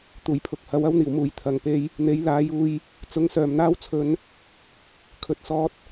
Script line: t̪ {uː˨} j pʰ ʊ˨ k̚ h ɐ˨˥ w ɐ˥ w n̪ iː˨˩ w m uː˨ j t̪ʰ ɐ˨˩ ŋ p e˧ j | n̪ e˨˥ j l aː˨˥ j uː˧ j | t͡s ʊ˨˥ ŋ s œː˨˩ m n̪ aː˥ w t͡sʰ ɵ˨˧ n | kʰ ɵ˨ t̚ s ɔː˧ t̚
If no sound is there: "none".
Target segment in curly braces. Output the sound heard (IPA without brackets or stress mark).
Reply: uː˨˩